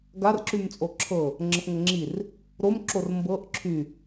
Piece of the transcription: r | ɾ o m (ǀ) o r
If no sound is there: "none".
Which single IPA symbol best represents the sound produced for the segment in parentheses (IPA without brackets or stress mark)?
ǁ